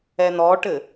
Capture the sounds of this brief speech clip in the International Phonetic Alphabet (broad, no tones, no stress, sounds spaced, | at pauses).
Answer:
ɛ n̪ ɔ ʈ ɘ